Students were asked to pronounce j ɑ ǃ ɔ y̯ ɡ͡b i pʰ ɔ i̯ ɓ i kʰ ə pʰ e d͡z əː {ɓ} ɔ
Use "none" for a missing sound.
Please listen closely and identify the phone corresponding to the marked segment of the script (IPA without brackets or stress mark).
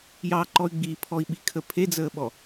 ɓ